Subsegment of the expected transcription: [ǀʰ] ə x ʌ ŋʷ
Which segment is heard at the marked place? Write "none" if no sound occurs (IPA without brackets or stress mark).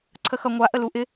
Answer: ǀʰ